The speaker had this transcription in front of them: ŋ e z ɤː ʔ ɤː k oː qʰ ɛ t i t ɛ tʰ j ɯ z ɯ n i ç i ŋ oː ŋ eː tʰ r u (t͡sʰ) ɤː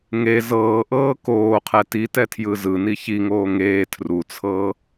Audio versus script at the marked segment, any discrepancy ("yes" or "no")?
no